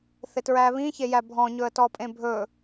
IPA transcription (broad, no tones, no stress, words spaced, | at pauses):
θɪtɹæβĩ çejæbʱɔ̃ ɲɵə̯tɔpʼẽbʱɵ